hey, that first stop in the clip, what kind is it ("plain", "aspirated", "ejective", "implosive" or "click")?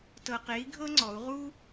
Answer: plain